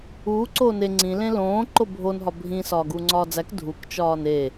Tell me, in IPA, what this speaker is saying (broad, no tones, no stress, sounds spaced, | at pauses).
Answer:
uː ǀ oː n e ŋ͡ǀ ĩ l ẽ l õː ǃ o bʱ o n ɦ ɒ bʱ ĩ s ɒː ɡ uː ŋ͡ǀ ɒː d͡z æ k dʱ u k t͡ʃ ɒː n e